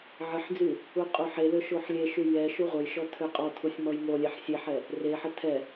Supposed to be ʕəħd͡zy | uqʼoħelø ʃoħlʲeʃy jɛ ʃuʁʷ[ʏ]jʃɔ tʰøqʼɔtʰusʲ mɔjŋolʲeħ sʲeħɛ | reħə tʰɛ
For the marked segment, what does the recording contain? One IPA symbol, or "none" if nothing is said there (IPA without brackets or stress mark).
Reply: ə